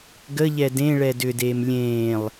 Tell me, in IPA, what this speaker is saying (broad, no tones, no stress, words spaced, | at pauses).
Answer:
ɡəʎɛ dẽ ɭɛdʏdeːm lʲẽːlˠ